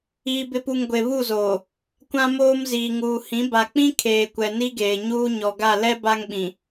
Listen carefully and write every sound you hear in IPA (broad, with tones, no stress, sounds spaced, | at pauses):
iː˨ b ɪ˨ p u˨ ŋ ɡʷ e˨ β u˦˨ z oː˨ | kʷ ã˦ m oː˦ m z iː˨ ŋ uː˨ h ĩ˨˦ b a˨ k͡p ĩ˦ kʰ eː˨ kʷ ɛ˨ n i˦ ɡ eː˨ ɲ uː˦ ɲ ɔ˨ ɡ a˦˨ l ɛ˦ b a˦ ŋ ɓ ĩ˨